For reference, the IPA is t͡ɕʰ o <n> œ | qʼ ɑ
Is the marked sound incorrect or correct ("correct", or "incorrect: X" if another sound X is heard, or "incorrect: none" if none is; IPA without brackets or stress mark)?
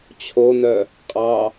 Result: correct